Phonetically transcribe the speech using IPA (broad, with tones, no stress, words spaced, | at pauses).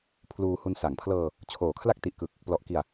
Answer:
pʰluː˧hu˧n sa˩˦ŋpʰlɤː˧ | t͡ɕʰoː˨˩kʰla˥˩k̚ ti˨˩ʔkɯ˨˩k̚ | plɔ˨˩ʔki˨˩a̯